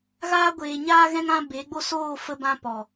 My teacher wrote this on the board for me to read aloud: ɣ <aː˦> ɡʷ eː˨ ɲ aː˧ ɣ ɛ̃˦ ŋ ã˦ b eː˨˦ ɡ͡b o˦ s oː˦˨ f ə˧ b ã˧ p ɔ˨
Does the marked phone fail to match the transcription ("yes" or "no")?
yes